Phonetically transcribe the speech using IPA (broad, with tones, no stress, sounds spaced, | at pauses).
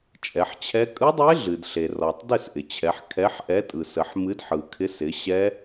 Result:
t͡ʃʼ ɛ˩˧ ħ t͡ɕʰ ɛ˦˥ kʼ ɯ˦˥ dˤ e˦˥ ɮ ɨ˩ d ɬ e˩ r ɔ˩ tˤ d ɪ˥˨ s ʔ ɪ˩ t͡ɕʰ ɛ˩˧ ħ kʰ ɛ˨˥ ħ ʔ ɛ˨˥ tʼ ɯ˩ s ə˩˧ ħ m ɨ˨˥ d ħ ɯ˩ kʰ ɪ˨˥ s ɪ˩˧ ɕ ɛ˦˥